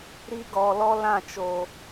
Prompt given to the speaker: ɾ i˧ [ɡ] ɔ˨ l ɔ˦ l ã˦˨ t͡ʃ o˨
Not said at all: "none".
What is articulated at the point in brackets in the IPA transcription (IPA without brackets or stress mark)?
ɡ